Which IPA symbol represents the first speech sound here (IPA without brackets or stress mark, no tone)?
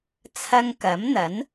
t͡sʰ